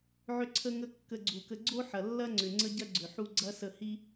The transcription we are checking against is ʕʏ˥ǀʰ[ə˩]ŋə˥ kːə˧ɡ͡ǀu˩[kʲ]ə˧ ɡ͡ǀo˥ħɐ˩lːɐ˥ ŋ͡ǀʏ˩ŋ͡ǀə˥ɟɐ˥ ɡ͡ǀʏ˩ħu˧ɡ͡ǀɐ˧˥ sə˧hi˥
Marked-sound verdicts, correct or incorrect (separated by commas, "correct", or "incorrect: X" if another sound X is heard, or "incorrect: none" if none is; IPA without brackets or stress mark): incorrect: ə˥, incorrect: k